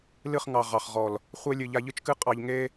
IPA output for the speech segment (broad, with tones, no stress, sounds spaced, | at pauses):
l ɨ˦˨ χ ŋ ɑ˨ ʁ ɑ˨ χ ʁ ɔ˨ l | χʷ e˦ lʲ ɨ˨ ʎ a˧ ʎ ɨ˦ t͡ʃ k ɨ˦ qʼ ɑ˧ ʎ ŋ e˦